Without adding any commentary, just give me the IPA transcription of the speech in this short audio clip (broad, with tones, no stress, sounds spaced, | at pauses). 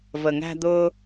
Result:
v ə˨ ŋ æ̤˧ d̪ ʊː˧